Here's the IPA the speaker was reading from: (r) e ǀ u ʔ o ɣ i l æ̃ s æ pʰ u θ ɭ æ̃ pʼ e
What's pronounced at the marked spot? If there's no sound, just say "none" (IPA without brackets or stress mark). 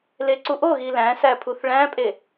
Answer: l